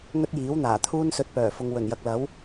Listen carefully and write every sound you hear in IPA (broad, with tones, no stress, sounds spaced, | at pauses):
ŋ ɵ˥ t̚ j iː˨˥ w n̪ aː˨˩ t̪ʰ uː˥ n s ɵ˧ t̚ p œː˨˩ f ʊ˨ ŋ w ɵ˨˩ n j ɐ˨ k̚ l ɐ˨˥ w